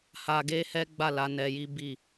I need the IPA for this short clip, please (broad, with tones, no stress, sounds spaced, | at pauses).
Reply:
h a˧ ɡ e˦ h ɛ˦ ɡ͡b a˦˨ l a˨˦ n ɛ˧ j i˦ b i˦˨